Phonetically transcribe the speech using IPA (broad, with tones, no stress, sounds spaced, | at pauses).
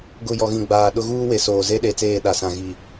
ɡ ʊ˨ j ɔ˨ ɣ ĩ˨ ɡ͡b aː˨ ɗ ʊ˦ ɣ uː˦ w e˨ s oː˨ z e˦ ɗ e˨ t͡s eː˦˨ ɗ a˨ s ã˨ ɣ i˨